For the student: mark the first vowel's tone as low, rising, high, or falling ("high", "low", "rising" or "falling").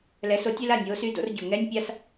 rising